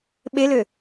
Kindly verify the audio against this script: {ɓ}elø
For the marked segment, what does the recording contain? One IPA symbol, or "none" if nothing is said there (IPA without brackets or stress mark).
ɓ